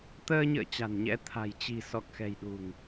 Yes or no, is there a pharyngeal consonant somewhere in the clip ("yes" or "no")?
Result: no